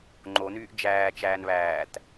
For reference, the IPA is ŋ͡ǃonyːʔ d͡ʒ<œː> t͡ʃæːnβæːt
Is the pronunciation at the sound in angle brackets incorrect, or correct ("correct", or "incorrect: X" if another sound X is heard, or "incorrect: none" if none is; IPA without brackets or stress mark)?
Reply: incorrect: æː